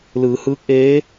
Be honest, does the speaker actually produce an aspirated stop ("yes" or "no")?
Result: no